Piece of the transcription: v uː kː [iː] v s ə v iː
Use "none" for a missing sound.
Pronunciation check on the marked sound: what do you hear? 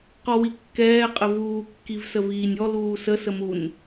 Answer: i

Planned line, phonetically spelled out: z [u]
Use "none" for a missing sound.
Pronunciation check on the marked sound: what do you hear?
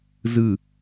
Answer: ɯ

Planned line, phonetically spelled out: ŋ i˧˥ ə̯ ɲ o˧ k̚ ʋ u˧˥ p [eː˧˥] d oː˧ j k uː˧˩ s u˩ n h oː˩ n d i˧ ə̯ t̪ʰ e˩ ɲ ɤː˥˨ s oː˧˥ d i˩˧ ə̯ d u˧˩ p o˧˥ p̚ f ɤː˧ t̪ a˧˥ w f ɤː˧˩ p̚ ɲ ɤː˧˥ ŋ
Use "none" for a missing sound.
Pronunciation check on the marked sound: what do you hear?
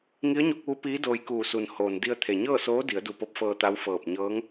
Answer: iː˧˥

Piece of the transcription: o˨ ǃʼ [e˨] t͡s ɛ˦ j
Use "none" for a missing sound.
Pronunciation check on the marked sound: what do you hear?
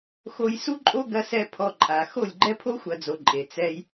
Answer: e˨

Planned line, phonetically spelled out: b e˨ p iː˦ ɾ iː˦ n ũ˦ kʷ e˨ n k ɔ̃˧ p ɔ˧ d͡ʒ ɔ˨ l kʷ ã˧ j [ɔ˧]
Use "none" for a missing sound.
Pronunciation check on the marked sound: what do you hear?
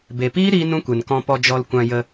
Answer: ə˧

